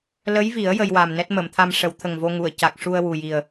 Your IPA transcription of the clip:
l ə˧˥ j v i˨˩˦ ə̯ j ə˧ j w a˨˩ m n ɛ˦˥ t̚ m ə˨˩˨ m t̪ʰ a˧ m ʂ ə˨˩˦ w t̪ʰ ə˨˩ ŋ v o˧ ŋ u˨˩˨ ə̯ c a˨˩ k̚ ʂ u˧ ə̯ w u˨˩ j i˨˩ ə̯

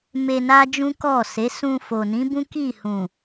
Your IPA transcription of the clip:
m e˧ n a˦ d͡ʒ ũ˦ k ɔ˦˨ s e˨˦ s ũ˧ f o˨ n ĩ˨˦ b ũ˦ k i˦˨ h ũ˨

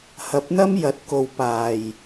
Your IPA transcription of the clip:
h ɐ˨˥ p̚ n̪ ɐ˥ m j ɐ˨˥ t̚ k o˨ w p aː˨˩ j

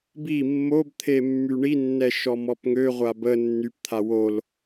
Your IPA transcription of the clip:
b i mː o b t̪ʰ e mː y ɳ i nː ɛ ʃ ɔ m ɔ p ŋ ø ʁʷ a b ə nː y p t̪ʰ a w o l

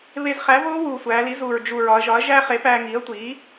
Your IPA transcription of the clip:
β e˧ z χ æ˩˥ v oː˦˥ w uː˨˩ sʷ æː˩˧ l i˩˥ z uː˨˩ ɹ d͡ʒ u˨˩ ɹ ɒ˩˧ ɐ̯ ʒ ɒ˩˥ ɐ̯ ʒ æː˦˥ χ e˩˥ p æː˧ ŋ iː˩˥ ɐ̯ tʷ iː˩˥

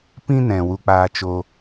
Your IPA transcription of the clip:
p ĩ˦ n ɛ̃˨ w u˧ k͡p aː˧ t͡ʃ o˧

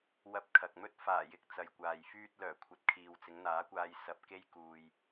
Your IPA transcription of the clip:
w ɐ˧ p̚ kʰ ɐ˨ k̚ m ɵ˥ t̚ f aː˨˩ j ɪ˨ k̚ t͡s ɐ˨ j kʷ aː˨ j f yː˧ t̚ l œː˨˩ kʷʰ ɐ˨ t̚ kʰ iː˨ w t͡s ɪ˨˧ ŋ n̪ aː˨˥ kʷ aː˧ j s ɐ˧ p̚ k e˥ j k uː˧ j

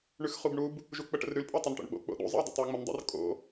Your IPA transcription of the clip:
ɳ ʉ x χ u b ɳ u b | ʒ u k͡p ə ʈ ə̰ r ɾ ʉ l pʼ o tˤ o n ʈ o̰ ɳ ɓ o̰ k͡p o̰ ɗ ṵ zˤ ə̰ i̯ dˤ ə̰ tˤ o u̯ ŋ͡m ə n dˤ ə̰ r kʼ o̰

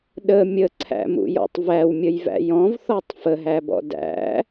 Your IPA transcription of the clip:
ɗ ə mʲ ə ǀʰ æ̰ m ṵ j ɔ̰ tˤ v æ w mʲ ə j v æ̰ j ɔ̃ v θ ɔ tˤ f ə ɦ æ b ɔ̰ d æ̰

